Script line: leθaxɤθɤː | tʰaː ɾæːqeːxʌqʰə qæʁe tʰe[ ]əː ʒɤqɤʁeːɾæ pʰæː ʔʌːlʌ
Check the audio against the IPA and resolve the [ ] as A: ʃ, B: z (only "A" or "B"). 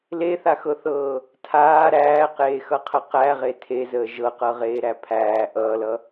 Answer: B